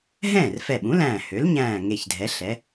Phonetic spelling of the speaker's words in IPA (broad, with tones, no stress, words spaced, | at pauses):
ɦɛ̃ː˥˩rfɛ˧˩ɓũ˩˥læ̃ː˧˩ hø˩˥lɲæ̃ː˧˩ ŋe˧˩çdʱɛ˩˥ ɬɛ˩˥